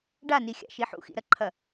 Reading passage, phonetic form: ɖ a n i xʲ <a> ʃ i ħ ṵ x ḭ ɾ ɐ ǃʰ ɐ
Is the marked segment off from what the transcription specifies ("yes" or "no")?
yes